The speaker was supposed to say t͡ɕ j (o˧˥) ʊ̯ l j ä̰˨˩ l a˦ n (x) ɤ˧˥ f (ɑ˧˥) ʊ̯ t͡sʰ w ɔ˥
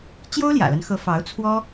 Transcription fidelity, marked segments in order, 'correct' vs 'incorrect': incorrect: o˥, correct, correct

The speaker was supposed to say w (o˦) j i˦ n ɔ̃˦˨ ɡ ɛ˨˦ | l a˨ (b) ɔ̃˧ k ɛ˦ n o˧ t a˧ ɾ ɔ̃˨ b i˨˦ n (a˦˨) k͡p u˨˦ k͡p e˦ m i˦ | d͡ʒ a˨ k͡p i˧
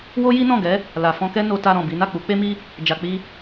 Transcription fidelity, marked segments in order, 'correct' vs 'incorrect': correct, incorrect: f, correct

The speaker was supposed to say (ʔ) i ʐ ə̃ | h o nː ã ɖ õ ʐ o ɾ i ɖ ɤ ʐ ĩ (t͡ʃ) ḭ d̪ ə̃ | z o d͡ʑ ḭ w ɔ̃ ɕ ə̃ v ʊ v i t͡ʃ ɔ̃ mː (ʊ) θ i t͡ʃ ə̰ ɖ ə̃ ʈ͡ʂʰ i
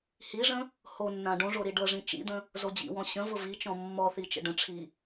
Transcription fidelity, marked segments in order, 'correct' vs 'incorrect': incorrect: h, correct, incorrect: ɔ

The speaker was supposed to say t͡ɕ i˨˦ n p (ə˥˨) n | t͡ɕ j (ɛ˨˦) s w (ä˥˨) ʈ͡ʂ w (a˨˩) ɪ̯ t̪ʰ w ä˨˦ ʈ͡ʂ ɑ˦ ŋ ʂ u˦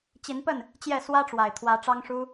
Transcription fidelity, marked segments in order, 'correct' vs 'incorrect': correct, incorrect: ɛ˥˨, incorrect: ä˦, correct

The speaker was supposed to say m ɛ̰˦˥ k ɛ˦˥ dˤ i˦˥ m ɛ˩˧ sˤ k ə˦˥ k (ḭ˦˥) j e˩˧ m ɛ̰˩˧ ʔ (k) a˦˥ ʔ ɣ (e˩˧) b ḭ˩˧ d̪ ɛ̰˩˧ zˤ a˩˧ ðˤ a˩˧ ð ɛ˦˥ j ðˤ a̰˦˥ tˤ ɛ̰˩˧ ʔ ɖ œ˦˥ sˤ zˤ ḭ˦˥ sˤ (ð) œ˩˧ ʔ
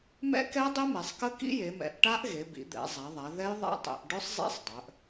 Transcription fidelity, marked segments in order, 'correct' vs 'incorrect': correct, incorrect: ʈ, correct, incorrect: dˤ

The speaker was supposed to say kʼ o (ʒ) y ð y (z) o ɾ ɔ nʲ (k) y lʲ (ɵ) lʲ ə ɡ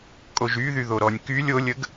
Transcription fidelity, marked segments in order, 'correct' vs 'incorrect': correct, incorrect: ð, correct, incorrect: o

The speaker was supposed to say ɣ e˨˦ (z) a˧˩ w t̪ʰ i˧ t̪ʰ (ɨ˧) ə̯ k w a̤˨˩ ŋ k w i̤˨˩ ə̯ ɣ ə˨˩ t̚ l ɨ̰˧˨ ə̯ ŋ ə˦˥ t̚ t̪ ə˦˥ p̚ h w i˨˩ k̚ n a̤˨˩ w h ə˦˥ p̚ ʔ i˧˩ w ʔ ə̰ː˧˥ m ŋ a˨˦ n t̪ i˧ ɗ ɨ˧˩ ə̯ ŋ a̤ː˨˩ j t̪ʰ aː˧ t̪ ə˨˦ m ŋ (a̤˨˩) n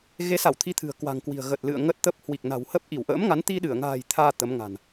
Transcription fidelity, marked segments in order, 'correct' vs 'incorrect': incorrect: s, incorrect: ɨ̤˨˩, correct

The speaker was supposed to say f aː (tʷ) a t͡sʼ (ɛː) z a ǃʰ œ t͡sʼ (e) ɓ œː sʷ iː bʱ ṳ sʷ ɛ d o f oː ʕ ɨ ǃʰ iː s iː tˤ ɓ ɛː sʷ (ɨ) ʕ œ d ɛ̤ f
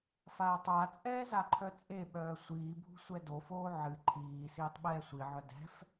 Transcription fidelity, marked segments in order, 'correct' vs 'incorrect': incorrect: tˤ, correct, correct, incorrect: i

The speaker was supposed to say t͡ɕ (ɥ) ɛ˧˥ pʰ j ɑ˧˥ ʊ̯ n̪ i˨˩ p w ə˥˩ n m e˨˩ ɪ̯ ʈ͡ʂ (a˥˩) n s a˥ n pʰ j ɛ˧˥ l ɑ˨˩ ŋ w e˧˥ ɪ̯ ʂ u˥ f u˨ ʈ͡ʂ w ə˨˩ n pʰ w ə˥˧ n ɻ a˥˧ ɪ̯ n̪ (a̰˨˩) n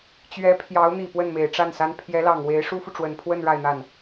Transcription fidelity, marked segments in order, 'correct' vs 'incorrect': correct, correct, incorrect: a˥˩

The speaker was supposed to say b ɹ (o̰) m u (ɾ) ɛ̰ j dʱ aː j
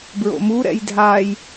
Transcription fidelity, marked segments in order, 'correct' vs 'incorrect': correct, correct

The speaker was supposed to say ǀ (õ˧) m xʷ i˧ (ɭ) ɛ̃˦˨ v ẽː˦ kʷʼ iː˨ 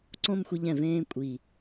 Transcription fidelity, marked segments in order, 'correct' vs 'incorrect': incorrect: õ˦, incorrect: ʎ

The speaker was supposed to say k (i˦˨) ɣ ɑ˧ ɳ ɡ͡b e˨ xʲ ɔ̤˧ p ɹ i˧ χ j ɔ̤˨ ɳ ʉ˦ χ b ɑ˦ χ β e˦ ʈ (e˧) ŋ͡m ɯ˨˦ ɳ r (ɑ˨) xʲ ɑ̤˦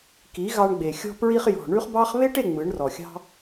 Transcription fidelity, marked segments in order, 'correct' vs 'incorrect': incorrect: i˨˦, incorrect: e˦˨, incorrect: ɔ˨

